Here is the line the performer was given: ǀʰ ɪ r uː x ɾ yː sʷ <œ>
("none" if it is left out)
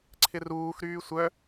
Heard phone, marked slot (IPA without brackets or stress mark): œ